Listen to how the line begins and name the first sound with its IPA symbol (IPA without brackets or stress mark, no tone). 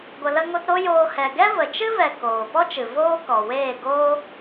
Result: ɡʷ